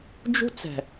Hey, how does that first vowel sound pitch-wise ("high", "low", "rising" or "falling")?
high